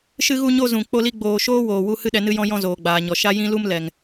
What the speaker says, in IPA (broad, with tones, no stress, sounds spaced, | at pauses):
ʃ ɨ˧ ɣ u˧ ɲ o˧ z ũ˨ k͡p o˧ l i˧ ɡ͡b oː˨ ʃ oː˦ w oː˨ w u˦ h ɨ˦ ɗ ɛ˧ n ɨ˦ j ɔ̃˦ j ɔ̃˦ z oː˨ ɡ͡b aː˨ ɲ ɔ˨ ʃ a˦ j ĩ˦ l u˦ m l ɛ˨ ŋ